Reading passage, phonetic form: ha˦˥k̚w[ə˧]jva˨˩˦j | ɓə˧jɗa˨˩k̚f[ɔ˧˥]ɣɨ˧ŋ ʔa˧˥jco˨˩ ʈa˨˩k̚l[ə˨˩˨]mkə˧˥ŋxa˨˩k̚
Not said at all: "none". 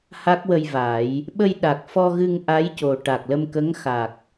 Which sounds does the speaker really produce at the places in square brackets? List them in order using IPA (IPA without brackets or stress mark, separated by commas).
ə˧, ɔ˧, ə˧